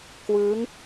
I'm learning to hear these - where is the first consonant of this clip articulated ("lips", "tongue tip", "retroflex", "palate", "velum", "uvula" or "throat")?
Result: velum